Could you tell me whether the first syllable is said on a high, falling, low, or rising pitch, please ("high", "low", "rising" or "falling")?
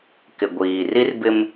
low